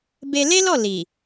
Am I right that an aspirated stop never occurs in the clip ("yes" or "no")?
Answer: yes